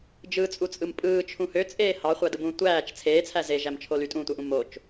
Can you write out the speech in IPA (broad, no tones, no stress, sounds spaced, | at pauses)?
d͡ʒ ɯ t͡sʼ u t͡sʼ ɯ m pʼ ɯː t͡ʃʰ ũ h ø t͡sʼ eː h ɑ χʷ æ d ɯ b ũː tʷ æː t͡ʃ t͡sʰ eː t͡sʰ æ z e ʒ æ m t͡ʃʰ o l y tʼ ũː tʷ æ ʔ ũ m o t͡ʃ